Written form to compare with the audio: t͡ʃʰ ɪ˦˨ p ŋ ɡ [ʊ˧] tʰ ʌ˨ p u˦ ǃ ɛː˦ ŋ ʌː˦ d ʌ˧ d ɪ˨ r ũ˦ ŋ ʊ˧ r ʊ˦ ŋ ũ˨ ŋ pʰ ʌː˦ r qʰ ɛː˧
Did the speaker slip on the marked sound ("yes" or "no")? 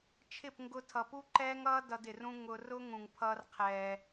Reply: no